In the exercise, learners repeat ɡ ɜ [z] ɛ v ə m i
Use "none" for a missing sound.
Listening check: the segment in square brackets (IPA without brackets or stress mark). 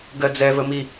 d͡z